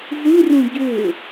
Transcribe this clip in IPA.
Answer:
z ɯ r ũ ɟ ø

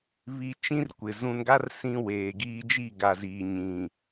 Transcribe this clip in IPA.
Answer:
β i˨ t͡ʃ ĩ˦ r kʷ ɪ˨ z ũ˨ n ɡ a˦ r s ĩ˦ w eː˨ ɡ iː˦ d͡ʒ i˦˨ ɡ a˨ z iː˨ ɲ ĩ˨

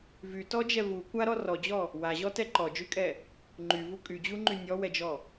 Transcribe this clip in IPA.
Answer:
v y t ɔ d͡ʒ ɛ v u kʷ a ɾ ɔ r ɔ d͡ʑ ɔ | w a ʑ ɔ t ɛ ǃ ɔ d͡ʒ y kʼ ɛ | ŋ͡ǃ y v u kʼ y d͡ʑ u ŋ͡ǃ y nʲ ɔ w ɛ d͡ʒ ɔ

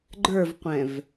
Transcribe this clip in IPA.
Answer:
ɡ͡ǃ ə˞ v qʷ ɛ̃ v

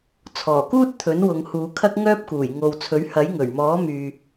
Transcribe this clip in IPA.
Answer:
t͡sʰ ɔː˨˩ k uː˥ t̚ t̪ʰ ɵ˨˥ n w ʊ˨˧ ŋ h uː˨˧ kʰ ɐ˥ k̚ ŋ œː˥ p̚ k uː˨˩ j ŋ o˨ w t͡sʰ ɵ˨˥ ɥ h ɐ˨˥ j ŋ ɵ˨˩ ɥ m ɔː˨˥ m yː˨

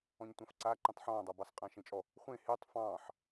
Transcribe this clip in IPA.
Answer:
ɔ̃ ɲ tʷ ã f ǀ a ǃ ɛ̃ tˤ ħ ɔ̃ː dˤ ɑ b ɑ s qʼ ã ʃ ẽ t͡ʃʼ ɔ | χʷ ẽ h e tˤ f ɑ̃ː ħ

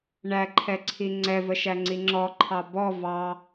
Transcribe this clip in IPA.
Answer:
ɳ æ ǃʰ ɛ ǀʰ i ŋ͡ǀ ɛ v ə ʃ æ ŋ͡ǀ i ŋ͡ǁ ɔ ǃʰ ɑ b ɔ v ɑ

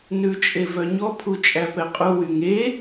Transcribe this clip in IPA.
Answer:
n ʉ t͡ʃʼ e v œ ɲ ɔ pʰ u t͡ʃʼ æ p ɛ qʼ u w y ŋ e

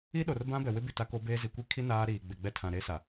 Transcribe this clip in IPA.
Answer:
i˦ ɗ o˨ r b ã˦ b ɛ˨ w ɪ˦ b i˨ t a˦ k o˦ b eː˦ z i˨ kʷ i˦ kʰ i˦ n aː˦ ɾ iː˨ ɡ͡b ɪ˨ ɡ͡b ɛ˦ tʰ ã˨ ɾ e˦ s a˨

